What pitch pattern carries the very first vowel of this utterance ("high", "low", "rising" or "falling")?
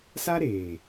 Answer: high